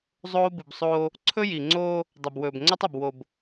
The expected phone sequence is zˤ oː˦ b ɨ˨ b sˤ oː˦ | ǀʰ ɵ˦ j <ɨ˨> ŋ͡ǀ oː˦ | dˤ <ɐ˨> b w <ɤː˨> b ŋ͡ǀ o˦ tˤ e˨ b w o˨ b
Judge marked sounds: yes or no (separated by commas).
no, yes, no